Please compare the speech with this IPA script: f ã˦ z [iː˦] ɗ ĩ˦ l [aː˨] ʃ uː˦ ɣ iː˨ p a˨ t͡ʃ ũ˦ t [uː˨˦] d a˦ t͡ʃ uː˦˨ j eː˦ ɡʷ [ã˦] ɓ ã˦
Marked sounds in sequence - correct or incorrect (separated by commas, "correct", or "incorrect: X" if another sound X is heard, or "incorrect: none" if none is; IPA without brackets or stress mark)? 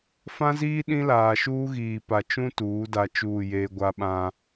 correct, correct, correct, incorrect: a˦